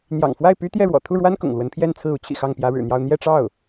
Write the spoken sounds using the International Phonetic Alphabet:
n̪jɑ̰˨˩ŋfwa˥˩ɪ̯ py˥ t̪jɛ˥˩ɻwɔ̰˨˩ t̪ʰu˥˩ɻwa˥n kʊ̰˨˩ŋlwə˧˥npʰjɛ˥˧nt͡sʰɹ̩˥˩ u˥t͡ɕʰḭ˨˩ xɑ˥˩ŋpjä˧˥ɻɻ̩˨˩n̪jɑ˥˧ʊ̯ n̪jɛ˥˧ʈ͡ʂɑ˥˩ʊ̯

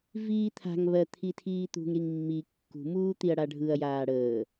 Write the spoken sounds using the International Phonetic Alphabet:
viːt̪ʰa̤ŋ βɜt̪ʰitʰiːt̪ṳŋ ɾiŋmːi kːṳ muːt̪iɐ̯ɽaɖʱɯɐ̯ jaːɽəː

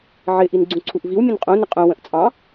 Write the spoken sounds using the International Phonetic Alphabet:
ʕɪ ʔinɡ͡ǀũǀʰuʔviw mʲə̃nqʼũ nɪqʼũ wə̃ʔt͡sʼɑ̃

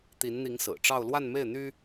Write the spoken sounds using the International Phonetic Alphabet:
t̪i˧˥nn̪i˧˥ŋsɹ̩˨˩ʈ͡ʂɑ˥˧ʊ̯ lwa˥˧nme˥˩ɪ̯n̪y˥

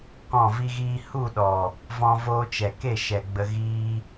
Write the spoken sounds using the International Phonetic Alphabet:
kɔ̃˦˨vi˦ɣiː˦ hu˦˨ɗɔ˨ | vɔ̃˧ voː˧t͡ʃɛ˨ke˦˨ ʃɛ˨ɡ͡bə˧ ɣiː˦

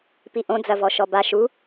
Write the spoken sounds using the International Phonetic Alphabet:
piʔõd͡zɐvɔ ʃɔba ʃu

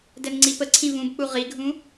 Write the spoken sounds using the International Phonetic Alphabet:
dɛnŋ͡ǀipəǀʰĩ vũbk͡pu ʁiɡʱũ

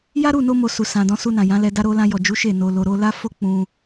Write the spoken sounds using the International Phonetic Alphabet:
ja˦ɾu˦˨no˧mo˨ su˨sã˨dɔ̃˨˦su˧ nã˨jã˨˦lɛ˧da˦ ɾo˧lã˧jɔ˨d͡ʒu˨˦ ʃe˦˨no˧lo˧ɾo˦ la˦fo˦ k͡pũ˧

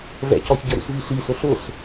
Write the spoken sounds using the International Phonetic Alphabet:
vɛ̰cɔç ɟəɾṵsviɬi sʊɬʊs

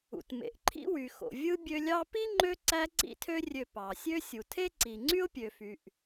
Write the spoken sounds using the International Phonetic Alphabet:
ṵ˩tmḛ˩ʔǃʰḭ˦ wy˩xo̰˩vʲɯ˦ bʲø˦lʲɑ˥ pi˥ŋ͡ǃø˦ ǀæ˦ǀḭ˦tʰø˦rʲø˨ pɑ˩sʲø˦ sʲu˩tʰe˥ǀi˩ ŋ͡ǀy˥ʊ̯pʲø˩fy˩ʔ

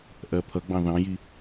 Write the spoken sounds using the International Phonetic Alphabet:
ʔɜpʰʌɡ͡bɑ̃ ðɑ̃ji

